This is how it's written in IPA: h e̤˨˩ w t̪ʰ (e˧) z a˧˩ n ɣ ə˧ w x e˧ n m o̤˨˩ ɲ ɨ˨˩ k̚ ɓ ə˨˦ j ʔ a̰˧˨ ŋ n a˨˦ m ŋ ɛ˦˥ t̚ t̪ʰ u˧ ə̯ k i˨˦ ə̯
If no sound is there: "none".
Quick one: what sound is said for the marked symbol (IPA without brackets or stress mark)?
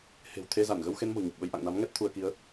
e˧